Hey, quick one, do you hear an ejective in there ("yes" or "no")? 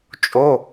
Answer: yes